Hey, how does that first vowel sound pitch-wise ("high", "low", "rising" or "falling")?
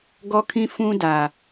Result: high